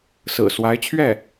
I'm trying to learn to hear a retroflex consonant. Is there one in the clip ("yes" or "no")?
no